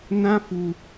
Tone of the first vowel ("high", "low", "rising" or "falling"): high